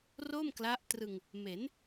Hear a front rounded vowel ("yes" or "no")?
no